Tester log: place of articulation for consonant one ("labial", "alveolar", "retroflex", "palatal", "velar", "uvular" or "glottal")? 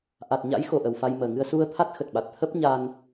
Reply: glottal